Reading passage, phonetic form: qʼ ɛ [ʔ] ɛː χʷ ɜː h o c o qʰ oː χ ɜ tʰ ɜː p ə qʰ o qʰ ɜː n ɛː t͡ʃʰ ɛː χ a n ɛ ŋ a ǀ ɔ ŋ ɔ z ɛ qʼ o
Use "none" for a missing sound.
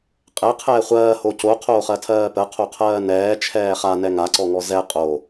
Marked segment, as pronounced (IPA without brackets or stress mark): qʰ